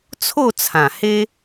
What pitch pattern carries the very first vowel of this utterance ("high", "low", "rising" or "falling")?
falling